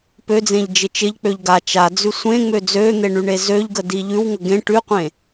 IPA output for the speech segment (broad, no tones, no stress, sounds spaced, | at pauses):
p ø d͡z ẽ ʎ d͡ʒ ɪ t͡ʃ ɪ ʎ k͡p ø ʎ ɡ a t͡ʃ a d͡z ʉ sʷ ẽ ŋ͡m ø d͡z ø n̪ e ɳ y ɳ e z ø ʎ ɡ ə d i ʎ ʉ w ŋ ə ɡ ẽ ʈ ʉ qʷ ẽ